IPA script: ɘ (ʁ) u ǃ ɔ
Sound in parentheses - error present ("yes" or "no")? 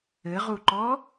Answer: no